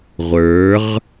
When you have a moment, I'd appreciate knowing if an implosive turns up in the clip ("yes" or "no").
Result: no